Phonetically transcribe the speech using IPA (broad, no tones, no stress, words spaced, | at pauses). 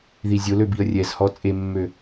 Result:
ðizʲolø biə̯rʲɛzhɔ t͡sʼemːø